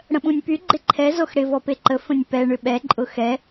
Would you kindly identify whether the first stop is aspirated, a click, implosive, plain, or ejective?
implosive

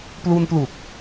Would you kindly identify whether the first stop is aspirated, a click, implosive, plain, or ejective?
plain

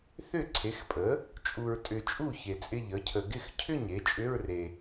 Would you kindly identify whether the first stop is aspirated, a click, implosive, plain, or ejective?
click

